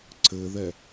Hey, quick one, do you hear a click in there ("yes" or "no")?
yes